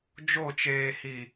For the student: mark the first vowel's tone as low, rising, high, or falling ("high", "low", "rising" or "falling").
falling